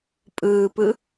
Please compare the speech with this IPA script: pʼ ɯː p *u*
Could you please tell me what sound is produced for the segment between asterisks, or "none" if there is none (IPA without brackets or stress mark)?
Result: ɯ